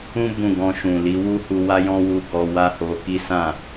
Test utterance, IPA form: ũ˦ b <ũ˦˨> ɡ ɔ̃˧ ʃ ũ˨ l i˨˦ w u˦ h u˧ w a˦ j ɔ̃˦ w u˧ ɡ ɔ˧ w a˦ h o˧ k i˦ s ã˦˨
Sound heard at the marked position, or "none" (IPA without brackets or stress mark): ũ˦˨